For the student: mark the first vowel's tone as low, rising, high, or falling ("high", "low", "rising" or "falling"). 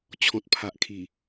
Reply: low